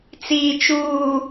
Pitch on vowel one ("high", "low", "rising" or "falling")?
low